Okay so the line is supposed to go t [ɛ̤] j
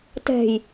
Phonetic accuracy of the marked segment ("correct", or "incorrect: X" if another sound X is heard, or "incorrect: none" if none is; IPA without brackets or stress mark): correct